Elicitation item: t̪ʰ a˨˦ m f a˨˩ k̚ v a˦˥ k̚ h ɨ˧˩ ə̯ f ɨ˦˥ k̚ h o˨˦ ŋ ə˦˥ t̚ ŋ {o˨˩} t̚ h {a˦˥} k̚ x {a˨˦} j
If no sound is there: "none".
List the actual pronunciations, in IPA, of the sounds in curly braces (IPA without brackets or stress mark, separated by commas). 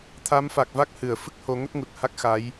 u˨˩, a˦˥, a˨˦